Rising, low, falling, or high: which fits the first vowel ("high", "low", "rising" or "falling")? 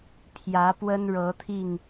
rising